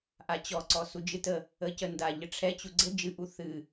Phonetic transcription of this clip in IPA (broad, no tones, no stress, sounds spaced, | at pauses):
ʔ a t͡ɕ ɔ ǀ ɔ s u d͡ʒ ɨ t ə | ə c ə n d a ʎ ə ʈ͡ʂʰ ɛ t͡ɕ u ɡ͡ǀ ə d͡ʒ ɨ ʔ u θ ɨ